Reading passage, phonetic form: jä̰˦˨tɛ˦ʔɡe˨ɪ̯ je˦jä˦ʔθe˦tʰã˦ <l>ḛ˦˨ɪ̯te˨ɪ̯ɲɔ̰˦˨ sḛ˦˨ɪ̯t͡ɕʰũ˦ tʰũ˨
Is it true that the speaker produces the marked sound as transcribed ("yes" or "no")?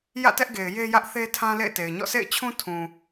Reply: yes